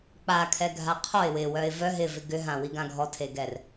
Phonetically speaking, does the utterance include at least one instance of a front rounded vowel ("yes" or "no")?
yes